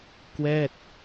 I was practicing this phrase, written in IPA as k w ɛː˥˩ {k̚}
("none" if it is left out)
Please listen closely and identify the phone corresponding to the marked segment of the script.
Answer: t̚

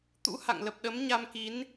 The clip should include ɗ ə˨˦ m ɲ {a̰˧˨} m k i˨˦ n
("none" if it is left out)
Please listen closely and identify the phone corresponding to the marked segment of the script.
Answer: a˧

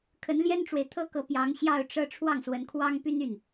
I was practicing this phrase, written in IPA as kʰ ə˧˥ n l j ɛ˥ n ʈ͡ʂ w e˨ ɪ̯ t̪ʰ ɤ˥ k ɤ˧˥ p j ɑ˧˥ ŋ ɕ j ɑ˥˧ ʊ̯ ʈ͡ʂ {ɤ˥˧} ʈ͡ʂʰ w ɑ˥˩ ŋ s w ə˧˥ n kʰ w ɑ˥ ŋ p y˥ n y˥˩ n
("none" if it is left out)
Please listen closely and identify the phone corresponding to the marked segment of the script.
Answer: ɤ˥˧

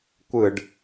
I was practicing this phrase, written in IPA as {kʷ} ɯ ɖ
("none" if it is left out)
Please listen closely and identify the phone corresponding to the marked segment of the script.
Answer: kʷ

